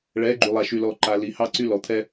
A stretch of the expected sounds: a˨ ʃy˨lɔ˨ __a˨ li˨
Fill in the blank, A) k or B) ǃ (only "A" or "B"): B